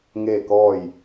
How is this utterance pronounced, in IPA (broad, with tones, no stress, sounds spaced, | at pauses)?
ŋ eː˥˨ k ɔː˥˨ j